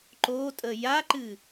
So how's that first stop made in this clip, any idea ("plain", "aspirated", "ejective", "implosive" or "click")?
click